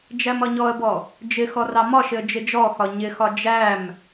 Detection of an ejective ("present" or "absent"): absent